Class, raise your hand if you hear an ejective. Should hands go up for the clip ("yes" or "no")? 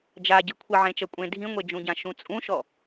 yes